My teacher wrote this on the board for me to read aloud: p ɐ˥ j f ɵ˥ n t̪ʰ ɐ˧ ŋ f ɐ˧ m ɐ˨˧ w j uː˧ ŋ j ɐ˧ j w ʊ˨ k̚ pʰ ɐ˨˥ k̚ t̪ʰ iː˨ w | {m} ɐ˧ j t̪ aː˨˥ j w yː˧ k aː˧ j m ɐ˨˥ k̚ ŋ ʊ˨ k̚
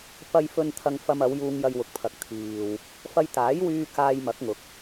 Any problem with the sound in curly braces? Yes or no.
yes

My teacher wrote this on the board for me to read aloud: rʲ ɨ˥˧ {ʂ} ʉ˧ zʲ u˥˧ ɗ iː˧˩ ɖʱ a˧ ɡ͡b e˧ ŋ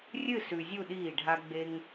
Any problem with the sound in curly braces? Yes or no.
yes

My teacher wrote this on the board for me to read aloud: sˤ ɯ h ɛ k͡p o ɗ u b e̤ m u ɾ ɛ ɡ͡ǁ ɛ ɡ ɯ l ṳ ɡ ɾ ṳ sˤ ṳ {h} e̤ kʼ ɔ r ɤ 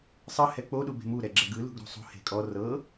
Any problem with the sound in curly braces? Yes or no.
no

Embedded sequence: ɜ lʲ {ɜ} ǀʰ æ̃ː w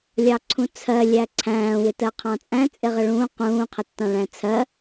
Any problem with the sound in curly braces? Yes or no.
yes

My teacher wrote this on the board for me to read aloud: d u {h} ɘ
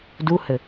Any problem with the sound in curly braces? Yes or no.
no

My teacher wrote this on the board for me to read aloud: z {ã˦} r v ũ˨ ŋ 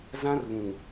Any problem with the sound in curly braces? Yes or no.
no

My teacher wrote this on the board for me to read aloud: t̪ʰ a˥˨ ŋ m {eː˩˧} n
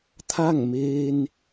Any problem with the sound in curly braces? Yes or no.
yes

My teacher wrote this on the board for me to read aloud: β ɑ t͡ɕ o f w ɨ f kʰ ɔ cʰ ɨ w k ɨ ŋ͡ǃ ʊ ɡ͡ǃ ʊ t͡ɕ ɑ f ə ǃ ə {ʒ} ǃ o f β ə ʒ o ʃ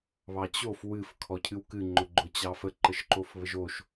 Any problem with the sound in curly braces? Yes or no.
yes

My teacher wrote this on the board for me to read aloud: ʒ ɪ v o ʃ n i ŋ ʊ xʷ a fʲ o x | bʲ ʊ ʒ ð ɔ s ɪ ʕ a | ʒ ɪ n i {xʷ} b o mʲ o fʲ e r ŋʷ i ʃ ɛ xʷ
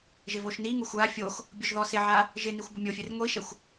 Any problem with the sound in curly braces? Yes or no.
no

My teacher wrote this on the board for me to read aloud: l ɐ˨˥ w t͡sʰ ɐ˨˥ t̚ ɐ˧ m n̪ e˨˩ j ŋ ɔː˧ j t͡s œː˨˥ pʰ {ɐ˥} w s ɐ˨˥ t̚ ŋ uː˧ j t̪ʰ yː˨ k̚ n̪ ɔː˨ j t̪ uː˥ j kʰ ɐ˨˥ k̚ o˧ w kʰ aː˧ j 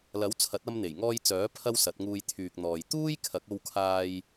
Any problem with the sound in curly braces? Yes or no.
no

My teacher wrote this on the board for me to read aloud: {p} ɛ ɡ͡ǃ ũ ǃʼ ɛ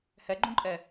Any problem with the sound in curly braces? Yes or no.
yes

